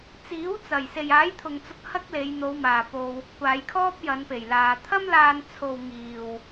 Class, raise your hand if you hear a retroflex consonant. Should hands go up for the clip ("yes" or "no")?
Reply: no